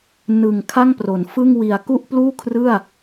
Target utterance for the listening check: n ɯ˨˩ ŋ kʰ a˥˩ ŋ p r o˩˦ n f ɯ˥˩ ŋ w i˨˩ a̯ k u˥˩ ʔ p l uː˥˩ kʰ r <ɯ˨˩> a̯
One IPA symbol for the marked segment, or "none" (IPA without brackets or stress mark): ɯ˥˩